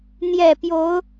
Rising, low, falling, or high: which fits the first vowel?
falling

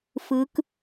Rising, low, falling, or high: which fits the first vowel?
rising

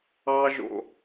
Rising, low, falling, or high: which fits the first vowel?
high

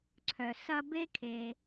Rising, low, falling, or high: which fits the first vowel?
low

